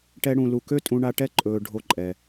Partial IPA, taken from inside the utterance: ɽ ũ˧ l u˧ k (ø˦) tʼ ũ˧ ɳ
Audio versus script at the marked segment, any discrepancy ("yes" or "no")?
no